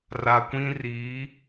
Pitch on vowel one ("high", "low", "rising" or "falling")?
low